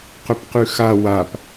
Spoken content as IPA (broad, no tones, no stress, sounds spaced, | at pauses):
q ɵ p q ʉ x a w a p